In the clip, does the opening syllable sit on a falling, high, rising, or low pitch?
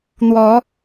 rising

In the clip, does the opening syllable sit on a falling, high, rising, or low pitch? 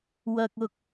low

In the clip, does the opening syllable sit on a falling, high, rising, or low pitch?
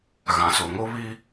low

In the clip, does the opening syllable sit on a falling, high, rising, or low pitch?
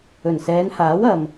low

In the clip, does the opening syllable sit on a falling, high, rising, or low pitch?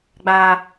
high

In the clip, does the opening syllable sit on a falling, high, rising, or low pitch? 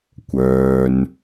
low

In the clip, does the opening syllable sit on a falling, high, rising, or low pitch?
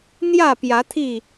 falling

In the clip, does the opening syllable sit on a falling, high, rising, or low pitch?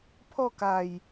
falling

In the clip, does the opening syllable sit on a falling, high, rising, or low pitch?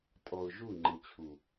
low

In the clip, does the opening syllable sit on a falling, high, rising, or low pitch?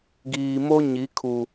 low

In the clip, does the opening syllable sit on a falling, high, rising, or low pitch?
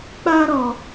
high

